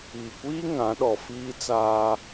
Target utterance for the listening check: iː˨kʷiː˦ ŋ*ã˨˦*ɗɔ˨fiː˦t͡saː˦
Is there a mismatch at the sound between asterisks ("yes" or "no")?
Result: no